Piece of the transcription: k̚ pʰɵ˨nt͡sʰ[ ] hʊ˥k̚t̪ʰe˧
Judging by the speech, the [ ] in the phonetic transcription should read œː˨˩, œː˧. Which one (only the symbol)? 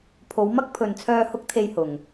œː˧